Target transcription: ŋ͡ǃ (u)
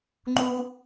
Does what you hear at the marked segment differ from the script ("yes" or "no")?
no